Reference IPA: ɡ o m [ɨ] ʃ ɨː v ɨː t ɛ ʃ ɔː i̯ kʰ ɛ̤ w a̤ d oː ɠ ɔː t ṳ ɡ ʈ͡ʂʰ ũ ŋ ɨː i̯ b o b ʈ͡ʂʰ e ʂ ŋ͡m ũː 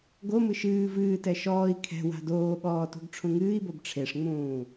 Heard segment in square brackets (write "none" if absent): ɨ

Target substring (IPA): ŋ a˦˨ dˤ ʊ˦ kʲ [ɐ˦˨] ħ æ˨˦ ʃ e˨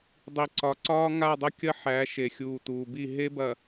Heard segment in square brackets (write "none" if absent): ɐ˦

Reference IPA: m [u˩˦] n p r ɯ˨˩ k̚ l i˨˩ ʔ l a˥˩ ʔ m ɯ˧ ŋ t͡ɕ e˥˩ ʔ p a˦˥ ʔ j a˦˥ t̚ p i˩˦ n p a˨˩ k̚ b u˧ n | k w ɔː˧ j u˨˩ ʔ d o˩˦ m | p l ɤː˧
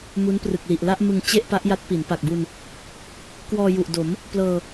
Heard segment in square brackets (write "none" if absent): u˦˥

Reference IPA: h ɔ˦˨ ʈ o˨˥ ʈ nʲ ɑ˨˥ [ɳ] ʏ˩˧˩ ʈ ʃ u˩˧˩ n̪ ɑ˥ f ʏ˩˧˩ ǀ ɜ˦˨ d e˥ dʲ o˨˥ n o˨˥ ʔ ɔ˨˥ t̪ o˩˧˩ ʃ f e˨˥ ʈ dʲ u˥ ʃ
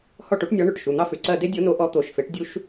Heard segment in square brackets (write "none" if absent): ɳ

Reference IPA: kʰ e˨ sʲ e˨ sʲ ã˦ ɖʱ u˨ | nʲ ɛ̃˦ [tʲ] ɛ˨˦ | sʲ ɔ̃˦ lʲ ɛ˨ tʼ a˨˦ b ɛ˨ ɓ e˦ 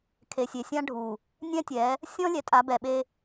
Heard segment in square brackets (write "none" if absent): tʲ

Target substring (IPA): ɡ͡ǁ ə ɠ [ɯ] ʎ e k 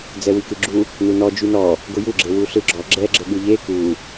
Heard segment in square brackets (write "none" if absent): ɯ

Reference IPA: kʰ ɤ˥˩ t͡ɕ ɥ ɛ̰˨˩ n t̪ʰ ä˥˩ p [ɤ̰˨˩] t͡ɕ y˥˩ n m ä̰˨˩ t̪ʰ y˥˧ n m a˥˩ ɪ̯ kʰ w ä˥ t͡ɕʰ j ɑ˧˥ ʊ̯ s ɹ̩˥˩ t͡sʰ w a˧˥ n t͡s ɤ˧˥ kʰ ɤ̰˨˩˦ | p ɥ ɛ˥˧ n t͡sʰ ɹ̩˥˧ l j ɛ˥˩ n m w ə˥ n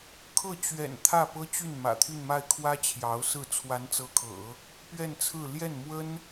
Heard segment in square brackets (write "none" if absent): ɤ˥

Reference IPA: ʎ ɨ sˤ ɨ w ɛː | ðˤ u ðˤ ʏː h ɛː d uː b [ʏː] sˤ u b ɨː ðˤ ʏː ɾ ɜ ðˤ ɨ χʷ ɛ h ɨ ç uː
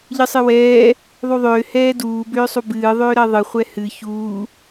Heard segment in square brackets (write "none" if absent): ʏː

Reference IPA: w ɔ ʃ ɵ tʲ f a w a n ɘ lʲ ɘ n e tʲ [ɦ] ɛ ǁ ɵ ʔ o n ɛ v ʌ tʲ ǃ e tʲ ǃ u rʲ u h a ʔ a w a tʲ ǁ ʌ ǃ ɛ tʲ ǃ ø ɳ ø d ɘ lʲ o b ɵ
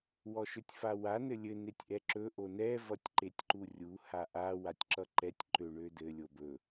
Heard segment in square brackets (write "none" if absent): ʔ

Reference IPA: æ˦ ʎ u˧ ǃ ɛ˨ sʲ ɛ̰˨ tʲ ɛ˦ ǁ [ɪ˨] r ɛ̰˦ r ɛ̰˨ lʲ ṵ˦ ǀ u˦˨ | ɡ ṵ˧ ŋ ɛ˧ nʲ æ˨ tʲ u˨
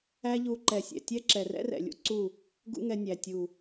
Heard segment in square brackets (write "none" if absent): ɛ˨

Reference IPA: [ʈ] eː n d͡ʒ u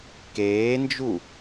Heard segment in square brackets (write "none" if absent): k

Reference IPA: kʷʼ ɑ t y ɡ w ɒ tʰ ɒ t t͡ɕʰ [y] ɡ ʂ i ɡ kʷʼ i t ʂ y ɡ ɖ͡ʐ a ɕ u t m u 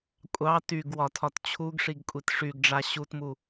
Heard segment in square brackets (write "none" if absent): u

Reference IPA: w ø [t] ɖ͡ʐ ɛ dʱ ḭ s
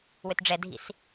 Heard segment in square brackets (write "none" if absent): t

